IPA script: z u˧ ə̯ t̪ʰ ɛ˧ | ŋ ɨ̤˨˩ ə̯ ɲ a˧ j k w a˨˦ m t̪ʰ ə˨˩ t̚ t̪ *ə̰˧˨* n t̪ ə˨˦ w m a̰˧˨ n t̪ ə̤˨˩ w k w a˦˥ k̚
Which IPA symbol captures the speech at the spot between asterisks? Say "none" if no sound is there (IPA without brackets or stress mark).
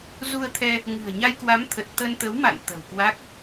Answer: ə˧